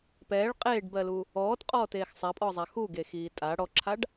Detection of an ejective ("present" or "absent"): present